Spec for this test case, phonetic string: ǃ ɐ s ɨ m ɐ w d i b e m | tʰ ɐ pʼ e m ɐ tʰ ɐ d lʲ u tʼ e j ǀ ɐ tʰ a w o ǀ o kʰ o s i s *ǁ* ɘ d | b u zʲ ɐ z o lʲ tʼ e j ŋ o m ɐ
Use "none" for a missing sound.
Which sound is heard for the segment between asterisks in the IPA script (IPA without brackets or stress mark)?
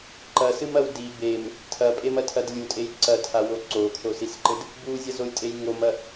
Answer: ǃ